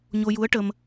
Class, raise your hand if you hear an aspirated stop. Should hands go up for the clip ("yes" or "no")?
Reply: no